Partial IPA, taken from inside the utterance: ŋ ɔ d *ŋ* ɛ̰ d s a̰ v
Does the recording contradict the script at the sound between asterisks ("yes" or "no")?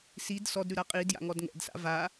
no